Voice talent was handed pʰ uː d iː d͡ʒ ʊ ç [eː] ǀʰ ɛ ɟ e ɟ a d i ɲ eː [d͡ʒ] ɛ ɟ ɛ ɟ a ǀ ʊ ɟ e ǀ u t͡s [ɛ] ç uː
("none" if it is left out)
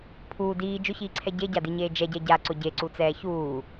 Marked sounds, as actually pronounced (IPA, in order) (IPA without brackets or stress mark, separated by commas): iː, d͡ʒ, ɛː